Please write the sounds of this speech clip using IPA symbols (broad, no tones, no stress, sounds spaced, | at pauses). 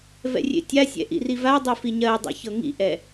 v ɛ̰ rʲ ḛ tʲ a sʲ ɛ̰ ʔ ḭ r i v a dˤ i f i ɲ ɜ dˤ ḭ ç ɤ ŋ ḭ ʔ ɛ